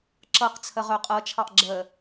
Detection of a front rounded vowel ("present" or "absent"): present